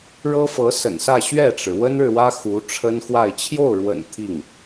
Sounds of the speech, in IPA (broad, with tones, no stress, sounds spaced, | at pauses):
ɻ ɤ˥ f ɤ˧˥ s ə̰˨˩ n s ä˥˧ ɕ ɥ ɛ˥˩ ʈ͡ʂ ɻ̩˩ w ə˥ n ɻ ɻ̩˨ w ä˥ x u˧˥ ʈ͡ʂʰ ə˥ n x w a˥˧ ɪ̯ t͡ɕʰ j o˥˩ ʊ̯ ɻ w ə̰˨˩ n t̪ʰ i˥˩ ŋ